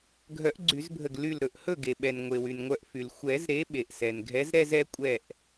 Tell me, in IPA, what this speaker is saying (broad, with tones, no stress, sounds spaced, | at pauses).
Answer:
ɡʱ œ˨˩˦ ʔ ɡ͡ǀ y˨˩˦ z bʱ ə˧˩ ɡ l y˧˩ l ɾ ɵ˧˩ ʔ h ɵ˥˩ ɡ e˩ ɓ ɛ˩ n ŋʷ e˩ w y˩ n ŋʷ œ˧˩ ʔ f y˩ l xʷ ɛ˨˩˦ z ɾ e˨˦ ɓ e˩ ʔ s ɛ˩ n ɡʱ ɛ˨˦ z ɾ ɛ˥˧ z ɛ˨˦ kʷʼ ɛ˧˩ ʔ